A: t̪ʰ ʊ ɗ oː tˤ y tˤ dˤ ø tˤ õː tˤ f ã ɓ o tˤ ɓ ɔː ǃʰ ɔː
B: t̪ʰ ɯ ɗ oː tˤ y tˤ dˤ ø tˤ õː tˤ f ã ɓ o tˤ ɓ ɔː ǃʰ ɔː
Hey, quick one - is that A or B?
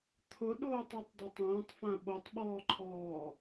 A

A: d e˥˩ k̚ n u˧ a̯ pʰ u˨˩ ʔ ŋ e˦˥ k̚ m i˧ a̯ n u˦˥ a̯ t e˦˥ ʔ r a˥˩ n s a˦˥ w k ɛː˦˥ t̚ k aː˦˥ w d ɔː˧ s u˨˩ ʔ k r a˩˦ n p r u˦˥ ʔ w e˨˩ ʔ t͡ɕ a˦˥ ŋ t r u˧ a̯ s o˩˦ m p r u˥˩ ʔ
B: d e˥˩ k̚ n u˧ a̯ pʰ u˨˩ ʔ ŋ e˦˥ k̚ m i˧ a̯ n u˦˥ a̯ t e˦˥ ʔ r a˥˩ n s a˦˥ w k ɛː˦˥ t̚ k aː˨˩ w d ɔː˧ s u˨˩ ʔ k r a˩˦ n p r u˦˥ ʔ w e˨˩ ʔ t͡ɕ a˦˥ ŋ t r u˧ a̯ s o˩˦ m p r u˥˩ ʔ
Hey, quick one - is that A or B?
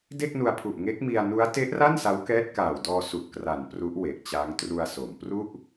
B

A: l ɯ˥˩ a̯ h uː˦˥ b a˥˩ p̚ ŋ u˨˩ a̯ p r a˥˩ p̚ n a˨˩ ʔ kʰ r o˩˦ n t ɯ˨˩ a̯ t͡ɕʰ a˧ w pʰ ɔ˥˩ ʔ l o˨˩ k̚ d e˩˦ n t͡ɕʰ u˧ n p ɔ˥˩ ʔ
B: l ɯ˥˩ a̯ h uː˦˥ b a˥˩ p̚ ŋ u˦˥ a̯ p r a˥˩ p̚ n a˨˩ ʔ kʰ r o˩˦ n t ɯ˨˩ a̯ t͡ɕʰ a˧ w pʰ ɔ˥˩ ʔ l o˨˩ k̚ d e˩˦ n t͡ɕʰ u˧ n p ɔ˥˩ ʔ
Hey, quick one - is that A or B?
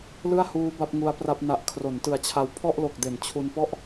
B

